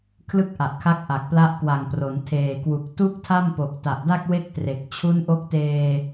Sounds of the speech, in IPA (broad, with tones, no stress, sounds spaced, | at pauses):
kʰ l ɯ˥˩ k̚ ʔ a˨˩ ʔ kʰ a˦˥ k̚ ʔ a˨˩ k̚ p l a˦˥ ʔ k w a˨˩ ŋ p r o˩˦ n tʰ eː˨˩ k w u˨˩ k̚ t u˥˩ k̚ tʰ a˥˩ m p o˨˩ k̚ t a˨˩ ʔ d a˥˩ k̚ w e˥˩ k̚ t r e˨˩ k̚ t͡ɕʰ u˦˥ n ʔ o˦˥ k̚ t eː˧